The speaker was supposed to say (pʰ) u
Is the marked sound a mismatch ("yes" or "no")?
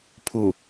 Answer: no